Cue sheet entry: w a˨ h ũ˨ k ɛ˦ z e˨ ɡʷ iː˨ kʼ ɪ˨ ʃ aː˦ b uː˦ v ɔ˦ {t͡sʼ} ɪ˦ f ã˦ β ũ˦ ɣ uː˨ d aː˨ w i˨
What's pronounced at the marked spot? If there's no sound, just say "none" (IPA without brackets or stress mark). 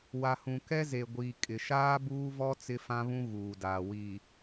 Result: t͡s